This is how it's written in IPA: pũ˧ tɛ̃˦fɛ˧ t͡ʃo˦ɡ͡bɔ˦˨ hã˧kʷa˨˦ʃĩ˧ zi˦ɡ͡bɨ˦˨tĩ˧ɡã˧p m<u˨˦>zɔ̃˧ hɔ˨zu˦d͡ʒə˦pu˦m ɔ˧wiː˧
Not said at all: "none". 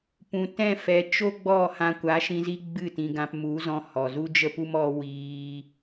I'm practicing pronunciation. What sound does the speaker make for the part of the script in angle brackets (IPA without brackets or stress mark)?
u˨˦